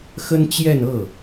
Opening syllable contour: high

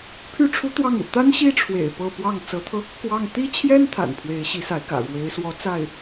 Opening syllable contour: falling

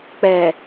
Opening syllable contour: low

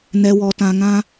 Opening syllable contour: low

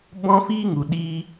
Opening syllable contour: high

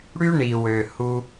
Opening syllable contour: high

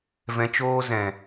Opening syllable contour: low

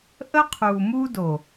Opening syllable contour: high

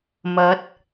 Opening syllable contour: rising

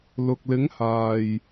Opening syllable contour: low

